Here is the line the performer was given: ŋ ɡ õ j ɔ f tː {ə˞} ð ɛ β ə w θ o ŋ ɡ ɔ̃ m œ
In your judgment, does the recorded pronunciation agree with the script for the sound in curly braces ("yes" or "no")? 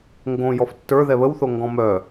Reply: yes